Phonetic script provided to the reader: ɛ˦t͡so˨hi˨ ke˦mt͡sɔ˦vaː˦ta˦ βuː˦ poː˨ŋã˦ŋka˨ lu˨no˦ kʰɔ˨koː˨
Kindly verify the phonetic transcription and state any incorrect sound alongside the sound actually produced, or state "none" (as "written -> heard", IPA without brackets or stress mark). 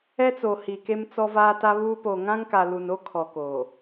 none